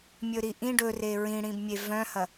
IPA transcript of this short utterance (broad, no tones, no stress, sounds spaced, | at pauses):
mʲ ɵ ɾ i ʔ ĩ ɖ ɵ r e ɹ ĩ ɽ ĩ b mʲ e v œ̃ h ɐ